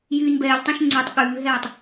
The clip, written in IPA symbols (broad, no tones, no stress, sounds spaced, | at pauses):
j yː n b ɛː ʎ tˤ œ̃ ʃ ŋ͡ǀ ʉ tˤ ɠ ʉː ɦ ɛː tˤ